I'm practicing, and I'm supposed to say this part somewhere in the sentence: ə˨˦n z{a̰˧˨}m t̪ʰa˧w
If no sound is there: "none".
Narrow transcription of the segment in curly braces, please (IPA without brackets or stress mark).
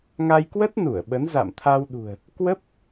a̰˧˨